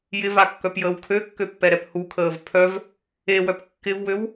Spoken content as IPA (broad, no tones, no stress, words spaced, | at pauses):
jɪvakːœpjəːw kʰøkːøpːɛɾɛp hukʰəːv pʰœv | ewœp kːɪvwøw